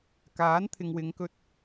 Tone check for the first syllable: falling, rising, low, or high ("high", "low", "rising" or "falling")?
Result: rising